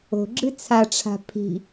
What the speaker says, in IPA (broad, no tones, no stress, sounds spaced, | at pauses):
o̤ ɡ͡ǁ ɨ t͡sʰ a ʈ͡ʂʰ a̤ pʰ i̤